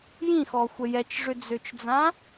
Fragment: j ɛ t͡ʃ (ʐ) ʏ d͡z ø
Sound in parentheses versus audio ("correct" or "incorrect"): correct